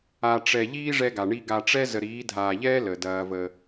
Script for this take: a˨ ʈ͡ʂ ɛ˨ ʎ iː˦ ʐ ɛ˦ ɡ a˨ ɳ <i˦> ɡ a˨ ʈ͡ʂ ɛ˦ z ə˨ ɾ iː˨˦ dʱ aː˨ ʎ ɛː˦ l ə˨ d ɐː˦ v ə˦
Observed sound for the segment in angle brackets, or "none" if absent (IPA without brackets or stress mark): i˦